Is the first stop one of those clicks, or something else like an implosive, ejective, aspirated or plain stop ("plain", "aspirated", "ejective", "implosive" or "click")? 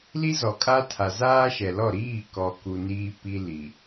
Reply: ejective